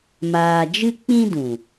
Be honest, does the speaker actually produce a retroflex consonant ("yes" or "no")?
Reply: no